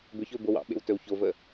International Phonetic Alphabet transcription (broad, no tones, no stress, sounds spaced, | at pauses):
b ʏ ç ɵ b o w ɑ̰ ɓ ḛ w t ɵ w ç o v ə